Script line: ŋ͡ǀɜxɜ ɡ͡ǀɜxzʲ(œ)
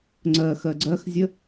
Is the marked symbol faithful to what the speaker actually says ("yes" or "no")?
no